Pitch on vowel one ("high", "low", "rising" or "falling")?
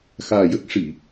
low